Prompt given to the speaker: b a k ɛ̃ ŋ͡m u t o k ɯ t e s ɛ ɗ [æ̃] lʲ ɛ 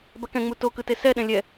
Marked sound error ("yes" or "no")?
yes